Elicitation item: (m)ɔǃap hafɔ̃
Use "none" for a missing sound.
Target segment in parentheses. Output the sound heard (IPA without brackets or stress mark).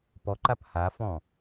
p